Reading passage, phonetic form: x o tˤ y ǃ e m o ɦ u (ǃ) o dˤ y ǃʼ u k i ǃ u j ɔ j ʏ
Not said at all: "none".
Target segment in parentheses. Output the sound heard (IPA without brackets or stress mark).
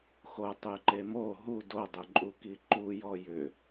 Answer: d